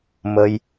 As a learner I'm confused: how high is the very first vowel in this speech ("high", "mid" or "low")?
mid